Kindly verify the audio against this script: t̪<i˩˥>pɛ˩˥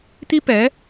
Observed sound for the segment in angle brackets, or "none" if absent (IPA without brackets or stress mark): i˥